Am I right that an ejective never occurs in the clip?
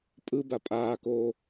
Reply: no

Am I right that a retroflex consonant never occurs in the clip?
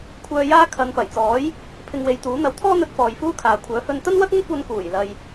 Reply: yes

